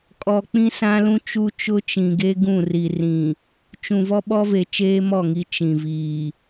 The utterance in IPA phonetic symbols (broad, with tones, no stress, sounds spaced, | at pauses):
kʼ ɔ˨ k͡p ĩ˦ s ã˦ l ũ˦ t͡ʃ u˦ t͡ʃ ʊ˦ t͡ʃ ĩ˨ ɡ e˦ ɡ ũ˦˨ r i˨ r ĩ˨ | t͡ʃ ũ˨ v ɔ˦ ɓ ɔ˦ v e˨ t͡ʃ eː˦ m ɔ˦˨ ŋ i˨˦ t͡ʃ ĩ˨ v iː˨